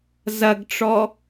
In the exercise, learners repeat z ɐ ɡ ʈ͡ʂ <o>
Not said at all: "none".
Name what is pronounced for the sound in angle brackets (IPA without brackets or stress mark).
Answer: ɔ